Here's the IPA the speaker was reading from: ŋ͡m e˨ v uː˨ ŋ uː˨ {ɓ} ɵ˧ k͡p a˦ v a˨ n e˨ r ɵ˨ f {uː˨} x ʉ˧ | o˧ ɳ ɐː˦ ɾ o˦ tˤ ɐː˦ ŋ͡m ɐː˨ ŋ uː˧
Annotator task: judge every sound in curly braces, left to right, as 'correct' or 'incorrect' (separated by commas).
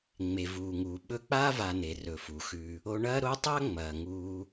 correct, incorrect